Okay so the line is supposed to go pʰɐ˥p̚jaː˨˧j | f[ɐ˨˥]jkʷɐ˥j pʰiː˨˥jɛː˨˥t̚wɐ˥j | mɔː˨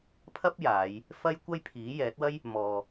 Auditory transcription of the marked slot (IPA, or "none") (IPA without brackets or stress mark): ɐ˥